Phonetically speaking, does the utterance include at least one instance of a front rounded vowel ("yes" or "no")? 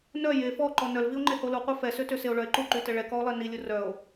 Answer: yes